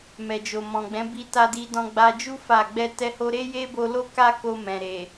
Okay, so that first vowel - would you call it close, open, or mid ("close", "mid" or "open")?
mid